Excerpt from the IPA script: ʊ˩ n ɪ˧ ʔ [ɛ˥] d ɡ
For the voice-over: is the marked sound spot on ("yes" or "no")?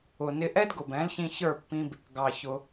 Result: yes